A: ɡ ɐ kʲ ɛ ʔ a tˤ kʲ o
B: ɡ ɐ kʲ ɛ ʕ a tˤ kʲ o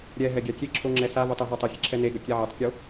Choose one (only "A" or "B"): B